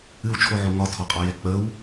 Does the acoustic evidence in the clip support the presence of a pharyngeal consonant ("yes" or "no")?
yes